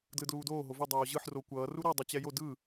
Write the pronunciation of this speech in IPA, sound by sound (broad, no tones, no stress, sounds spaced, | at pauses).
d l ɯ d l uː d oː ɦ o v u dˤ oː ʑ ɯ ħ r o kʷ ʌː r u ɾ ɛ dˤ u t͡ɕ ɛ j o d ɯ